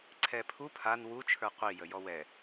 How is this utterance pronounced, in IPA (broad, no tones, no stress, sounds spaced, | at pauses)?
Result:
ǀʰ ɛ pʰ u pʰ a n w u t͡ʃʰ ə˞ qʷ i j ə j ɔ w ɛ